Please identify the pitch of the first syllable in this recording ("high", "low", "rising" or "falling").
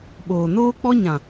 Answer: low